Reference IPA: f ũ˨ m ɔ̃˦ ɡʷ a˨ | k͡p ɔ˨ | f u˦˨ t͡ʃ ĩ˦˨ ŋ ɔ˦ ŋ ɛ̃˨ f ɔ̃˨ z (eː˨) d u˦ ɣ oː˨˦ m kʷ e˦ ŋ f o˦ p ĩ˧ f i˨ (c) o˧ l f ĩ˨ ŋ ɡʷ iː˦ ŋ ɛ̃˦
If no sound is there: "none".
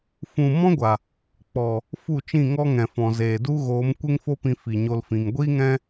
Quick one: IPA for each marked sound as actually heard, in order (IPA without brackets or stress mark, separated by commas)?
eː˨, ɲ